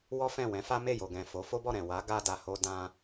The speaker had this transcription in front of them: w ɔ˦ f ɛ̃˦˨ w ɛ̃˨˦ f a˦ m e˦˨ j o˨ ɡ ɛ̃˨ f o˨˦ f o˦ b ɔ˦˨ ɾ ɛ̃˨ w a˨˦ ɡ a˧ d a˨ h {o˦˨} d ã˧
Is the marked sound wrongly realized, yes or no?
yes